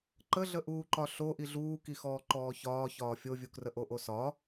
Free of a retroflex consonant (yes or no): yes